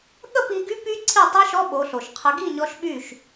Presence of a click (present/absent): present